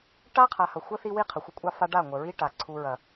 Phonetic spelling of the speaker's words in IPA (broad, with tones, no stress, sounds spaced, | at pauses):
ʈ a˦ qʰ a˨ h ɐ˨ xʷ ə˦ θ i˦ w i˦ qʰ ə˨ xʷ ə˦ kʷʼ ɑ˦ f a˦ ɖ a˦˨ ŋʷ ə˨ ɹ i˦ ʈ a˨ ǀʰ u˦ ɹ ɐ˦